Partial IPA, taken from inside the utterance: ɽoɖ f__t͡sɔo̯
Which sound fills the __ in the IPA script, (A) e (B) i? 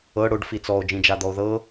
B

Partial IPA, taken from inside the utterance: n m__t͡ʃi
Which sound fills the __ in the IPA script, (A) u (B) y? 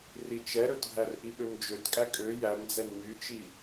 B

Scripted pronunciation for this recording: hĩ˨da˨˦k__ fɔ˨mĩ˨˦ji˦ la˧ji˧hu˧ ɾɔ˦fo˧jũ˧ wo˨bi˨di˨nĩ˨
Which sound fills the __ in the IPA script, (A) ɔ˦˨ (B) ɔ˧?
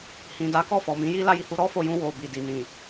A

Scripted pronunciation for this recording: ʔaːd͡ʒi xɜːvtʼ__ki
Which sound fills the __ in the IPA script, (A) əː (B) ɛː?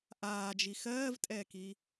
B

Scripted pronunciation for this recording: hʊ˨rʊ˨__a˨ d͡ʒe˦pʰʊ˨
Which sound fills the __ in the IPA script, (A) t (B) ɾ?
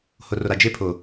B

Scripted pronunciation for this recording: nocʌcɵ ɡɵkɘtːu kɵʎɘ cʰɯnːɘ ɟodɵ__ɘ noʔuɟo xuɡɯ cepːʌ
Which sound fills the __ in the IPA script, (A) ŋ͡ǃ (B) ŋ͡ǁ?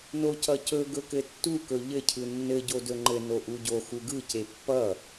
A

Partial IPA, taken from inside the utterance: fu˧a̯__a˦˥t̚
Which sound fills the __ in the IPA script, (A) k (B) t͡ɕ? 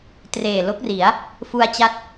B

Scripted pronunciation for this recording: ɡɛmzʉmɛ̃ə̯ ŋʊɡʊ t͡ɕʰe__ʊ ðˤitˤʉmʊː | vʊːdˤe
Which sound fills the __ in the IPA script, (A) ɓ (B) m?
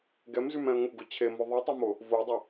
B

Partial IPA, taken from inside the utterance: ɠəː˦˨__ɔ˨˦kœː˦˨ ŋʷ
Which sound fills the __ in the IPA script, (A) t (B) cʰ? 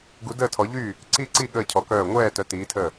B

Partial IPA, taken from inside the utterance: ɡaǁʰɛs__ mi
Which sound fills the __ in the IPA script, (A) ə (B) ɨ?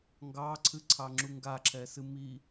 B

